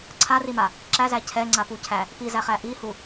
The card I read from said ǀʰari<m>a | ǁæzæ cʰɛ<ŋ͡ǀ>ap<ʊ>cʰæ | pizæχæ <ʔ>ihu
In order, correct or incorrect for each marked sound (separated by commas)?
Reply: correct, correct, incorrect, correct